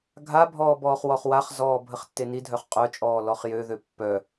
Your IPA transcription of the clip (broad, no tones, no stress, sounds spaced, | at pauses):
ɡʱ a bʱ ɔː b ɔː χ w ɔ χ w a χ z ɔː bʱ ə χ tː e n i dʱ œ χ qʼ œ t͡ʃʼ ɔː l ɔ χ j ø ð ø pː œ